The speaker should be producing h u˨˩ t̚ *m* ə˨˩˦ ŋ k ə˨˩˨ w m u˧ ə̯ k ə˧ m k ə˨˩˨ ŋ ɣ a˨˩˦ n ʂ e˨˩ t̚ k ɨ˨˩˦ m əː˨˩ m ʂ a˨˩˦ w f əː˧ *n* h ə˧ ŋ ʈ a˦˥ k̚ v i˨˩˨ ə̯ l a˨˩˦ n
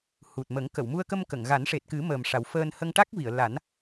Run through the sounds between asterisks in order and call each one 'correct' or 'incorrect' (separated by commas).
correct, correct